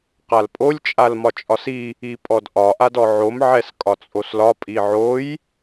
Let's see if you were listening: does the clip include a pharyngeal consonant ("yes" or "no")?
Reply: yes